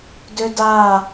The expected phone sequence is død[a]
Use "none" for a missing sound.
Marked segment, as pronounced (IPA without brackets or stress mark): a